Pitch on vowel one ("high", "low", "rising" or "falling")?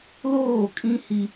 falling